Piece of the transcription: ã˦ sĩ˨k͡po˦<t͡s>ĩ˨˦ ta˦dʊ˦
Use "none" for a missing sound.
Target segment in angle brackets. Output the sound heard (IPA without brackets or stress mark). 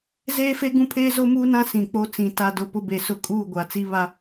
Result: t͡s